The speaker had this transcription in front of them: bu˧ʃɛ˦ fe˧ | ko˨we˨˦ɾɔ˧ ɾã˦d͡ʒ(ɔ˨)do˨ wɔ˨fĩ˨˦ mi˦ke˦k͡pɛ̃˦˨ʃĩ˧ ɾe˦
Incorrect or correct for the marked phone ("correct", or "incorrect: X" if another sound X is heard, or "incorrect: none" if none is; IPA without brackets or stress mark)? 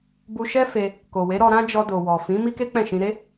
incorrect: ɔ˧